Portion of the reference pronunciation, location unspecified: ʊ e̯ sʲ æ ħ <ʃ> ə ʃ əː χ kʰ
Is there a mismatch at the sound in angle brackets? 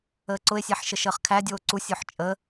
no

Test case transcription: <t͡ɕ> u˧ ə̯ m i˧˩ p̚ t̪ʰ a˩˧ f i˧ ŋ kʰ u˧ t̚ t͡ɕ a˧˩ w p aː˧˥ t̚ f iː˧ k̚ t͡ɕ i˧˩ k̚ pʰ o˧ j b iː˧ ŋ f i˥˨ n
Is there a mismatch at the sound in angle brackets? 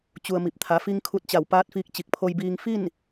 no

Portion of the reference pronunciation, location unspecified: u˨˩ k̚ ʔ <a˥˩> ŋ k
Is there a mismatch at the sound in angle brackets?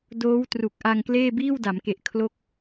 yes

